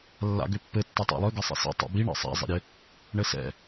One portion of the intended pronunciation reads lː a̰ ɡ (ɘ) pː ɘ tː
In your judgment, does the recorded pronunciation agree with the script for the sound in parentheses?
no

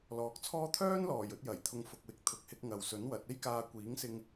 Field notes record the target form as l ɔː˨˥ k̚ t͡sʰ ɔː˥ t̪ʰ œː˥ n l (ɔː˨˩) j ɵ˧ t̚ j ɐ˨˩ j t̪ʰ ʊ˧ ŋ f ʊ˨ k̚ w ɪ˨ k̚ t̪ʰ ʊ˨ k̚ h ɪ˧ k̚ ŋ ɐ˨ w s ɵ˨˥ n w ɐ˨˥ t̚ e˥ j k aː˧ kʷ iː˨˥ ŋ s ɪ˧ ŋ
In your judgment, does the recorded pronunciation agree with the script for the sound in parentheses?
yes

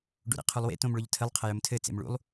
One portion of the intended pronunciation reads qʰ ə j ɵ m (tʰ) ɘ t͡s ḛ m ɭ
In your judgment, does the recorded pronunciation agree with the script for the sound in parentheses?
yes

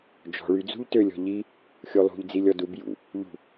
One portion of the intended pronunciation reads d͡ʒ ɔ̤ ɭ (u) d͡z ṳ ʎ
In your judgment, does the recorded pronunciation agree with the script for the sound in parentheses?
no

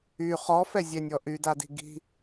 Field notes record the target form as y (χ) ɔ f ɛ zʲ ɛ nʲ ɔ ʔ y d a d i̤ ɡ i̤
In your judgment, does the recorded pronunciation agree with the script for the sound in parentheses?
yes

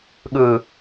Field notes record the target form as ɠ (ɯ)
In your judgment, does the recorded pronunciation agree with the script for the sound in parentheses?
yes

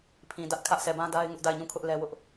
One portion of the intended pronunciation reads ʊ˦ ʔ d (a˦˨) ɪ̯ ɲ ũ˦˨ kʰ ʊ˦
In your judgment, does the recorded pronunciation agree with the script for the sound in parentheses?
yes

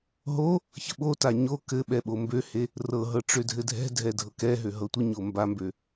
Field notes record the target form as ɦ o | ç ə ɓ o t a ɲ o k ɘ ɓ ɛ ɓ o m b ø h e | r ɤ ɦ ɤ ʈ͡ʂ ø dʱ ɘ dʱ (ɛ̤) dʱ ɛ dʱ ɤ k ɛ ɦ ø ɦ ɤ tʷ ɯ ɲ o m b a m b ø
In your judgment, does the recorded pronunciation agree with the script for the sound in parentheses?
yes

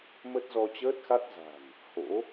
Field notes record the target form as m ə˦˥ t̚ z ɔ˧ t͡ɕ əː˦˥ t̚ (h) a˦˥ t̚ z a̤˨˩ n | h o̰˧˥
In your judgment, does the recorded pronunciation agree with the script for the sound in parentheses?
no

